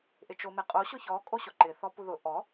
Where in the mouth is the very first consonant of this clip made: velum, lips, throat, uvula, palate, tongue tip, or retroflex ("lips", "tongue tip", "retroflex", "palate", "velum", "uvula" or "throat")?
throat